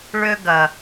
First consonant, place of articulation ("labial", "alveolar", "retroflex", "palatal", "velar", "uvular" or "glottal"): retroflex